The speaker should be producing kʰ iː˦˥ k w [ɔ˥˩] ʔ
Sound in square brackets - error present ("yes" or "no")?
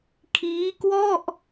no